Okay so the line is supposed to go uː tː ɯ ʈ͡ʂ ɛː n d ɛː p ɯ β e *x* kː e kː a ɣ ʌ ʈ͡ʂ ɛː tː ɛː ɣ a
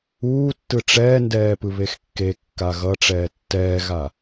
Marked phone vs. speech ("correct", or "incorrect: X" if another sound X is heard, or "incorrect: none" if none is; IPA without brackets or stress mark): correct